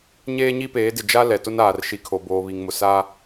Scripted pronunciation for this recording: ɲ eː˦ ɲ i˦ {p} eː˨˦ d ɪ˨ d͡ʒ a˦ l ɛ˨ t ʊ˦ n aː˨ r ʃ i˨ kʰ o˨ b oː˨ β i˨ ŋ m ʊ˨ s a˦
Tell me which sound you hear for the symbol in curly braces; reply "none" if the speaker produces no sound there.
p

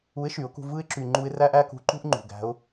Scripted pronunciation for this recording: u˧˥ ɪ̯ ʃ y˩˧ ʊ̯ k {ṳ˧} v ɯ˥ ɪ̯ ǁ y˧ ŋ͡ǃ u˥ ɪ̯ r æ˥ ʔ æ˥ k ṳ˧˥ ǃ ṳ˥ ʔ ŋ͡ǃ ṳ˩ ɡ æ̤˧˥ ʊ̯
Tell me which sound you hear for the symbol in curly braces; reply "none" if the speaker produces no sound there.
ṳ˧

